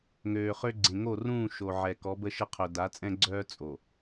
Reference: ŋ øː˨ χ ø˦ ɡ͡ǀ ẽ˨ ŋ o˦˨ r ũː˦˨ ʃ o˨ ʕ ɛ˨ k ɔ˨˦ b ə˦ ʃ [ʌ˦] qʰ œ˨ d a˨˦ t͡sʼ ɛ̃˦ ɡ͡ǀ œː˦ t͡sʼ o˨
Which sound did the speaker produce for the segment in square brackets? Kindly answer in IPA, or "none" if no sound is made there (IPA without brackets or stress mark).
ə˦